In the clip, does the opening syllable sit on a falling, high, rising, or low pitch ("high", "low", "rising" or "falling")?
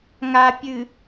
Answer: low